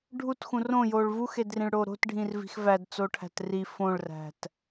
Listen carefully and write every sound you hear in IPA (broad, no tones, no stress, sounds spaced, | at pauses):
ɖʱ u t x ũ r õ j o ɭ v u x e d r ĩ ɭ ɽ oː ɾ o̤ t ɖʱ ĩ r v i̤ x v æ d t͡s o ʈʰ æ̤ t r i f õ ɭ r æ̤ t